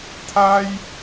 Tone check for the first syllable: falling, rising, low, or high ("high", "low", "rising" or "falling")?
high